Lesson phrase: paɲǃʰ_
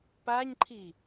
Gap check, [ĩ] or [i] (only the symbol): i